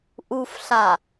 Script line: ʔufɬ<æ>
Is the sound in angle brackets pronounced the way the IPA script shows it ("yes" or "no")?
no